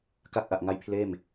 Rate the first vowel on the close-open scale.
open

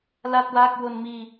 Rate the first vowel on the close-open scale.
open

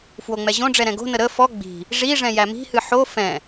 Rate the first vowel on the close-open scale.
mid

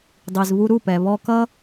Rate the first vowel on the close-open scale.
close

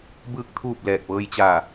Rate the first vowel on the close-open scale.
close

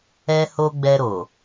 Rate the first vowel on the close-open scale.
mid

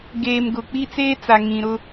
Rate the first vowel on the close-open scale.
mid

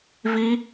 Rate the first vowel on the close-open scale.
close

